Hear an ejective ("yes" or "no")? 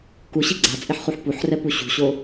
yes